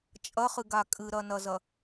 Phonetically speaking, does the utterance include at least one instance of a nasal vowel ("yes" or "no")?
no